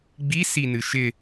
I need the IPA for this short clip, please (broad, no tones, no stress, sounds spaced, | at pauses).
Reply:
ɡ͡b i s i n ɨ ʃ ɪ